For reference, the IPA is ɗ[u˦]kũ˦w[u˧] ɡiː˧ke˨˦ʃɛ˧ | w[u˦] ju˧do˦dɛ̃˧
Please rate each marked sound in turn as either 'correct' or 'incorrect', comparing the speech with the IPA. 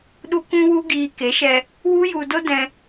correct, incorrect, correct

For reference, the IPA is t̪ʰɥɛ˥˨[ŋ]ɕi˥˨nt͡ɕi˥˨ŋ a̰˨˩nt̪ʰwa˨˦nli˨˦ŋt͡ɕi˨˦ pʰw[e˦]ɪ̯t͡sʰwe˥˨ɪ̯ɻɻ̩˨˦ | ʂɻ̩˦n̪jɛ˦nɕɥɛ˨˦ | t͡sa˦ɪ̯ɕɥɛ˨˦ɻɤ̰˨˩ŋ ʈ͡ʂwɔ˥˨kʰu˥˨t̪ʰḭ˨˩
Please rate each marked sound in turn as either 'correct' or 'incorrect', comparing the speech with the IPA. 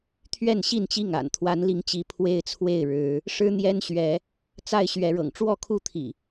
incorrect, correct

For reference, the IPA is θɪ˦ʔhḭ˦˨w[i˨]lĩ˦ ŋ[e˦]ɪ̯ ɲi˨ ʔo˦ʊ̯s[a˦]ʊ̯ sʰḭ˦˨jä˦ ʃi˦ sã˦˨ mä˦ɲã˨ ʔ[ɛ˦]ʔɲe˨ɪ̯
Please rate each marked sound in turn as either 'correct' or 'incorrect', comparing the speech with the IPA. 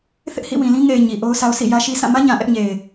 incorrect, incorrect, correct, correct

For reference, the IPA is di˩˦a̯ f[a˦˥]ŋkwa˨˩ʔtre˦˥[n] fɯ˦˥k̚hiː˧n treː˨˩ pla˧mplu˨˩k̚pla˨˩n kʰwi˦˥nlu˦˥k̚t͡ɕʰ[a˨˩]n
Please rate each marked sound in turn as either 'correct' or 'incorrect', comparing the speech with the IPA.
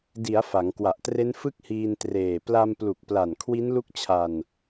incorrect, correct, incorrect

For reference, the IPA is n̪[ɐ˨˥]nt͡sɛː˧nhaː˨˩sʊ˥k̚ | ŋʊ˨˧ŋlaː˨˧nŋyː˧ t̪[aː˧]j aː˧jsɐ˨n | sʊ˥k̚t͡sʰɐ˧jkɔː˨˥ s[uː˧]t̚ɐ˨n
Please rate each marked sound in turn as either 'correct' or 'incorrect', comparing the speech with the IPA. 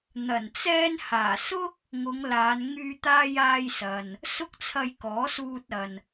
incorrect, correct, correct

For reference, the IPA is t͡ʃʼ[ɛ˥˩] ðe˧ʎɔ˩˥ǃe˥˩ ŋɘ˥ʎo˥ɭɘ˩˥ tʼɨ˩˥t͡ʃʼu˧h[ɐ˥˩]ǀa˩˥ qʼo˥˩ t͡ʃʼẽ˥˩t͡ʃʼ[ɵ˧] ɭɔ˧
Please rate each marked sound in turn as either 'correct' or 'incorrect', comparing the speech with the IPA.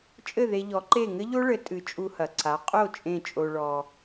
incorrect, incorrect, incorrect

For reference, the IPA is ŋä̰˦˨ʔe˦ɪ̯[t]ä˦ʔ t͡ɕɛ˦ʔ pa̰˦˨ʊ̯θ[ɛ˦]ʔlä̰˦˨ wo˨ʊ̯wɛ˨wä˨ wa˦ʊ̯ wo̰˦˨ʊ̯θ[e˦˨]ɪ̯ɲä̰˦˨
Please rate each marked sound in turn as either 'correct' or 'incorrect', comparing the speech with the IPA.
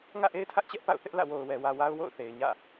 incorrect, incorrect, incorrect

